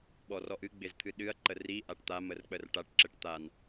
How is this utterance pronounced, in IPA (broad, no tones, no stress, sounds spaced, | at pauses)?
ɓ ɔ r ɔ ʔ ɨ ɡ͡b ɪ z t̪ʰ ɨ ɗ ɨ ɐ̯ ǃ ə r i ʔ a ʈ t̪ a m ə r k͡p ə r ʈ a ʈ ǁ ɘ ʈ t̪ a n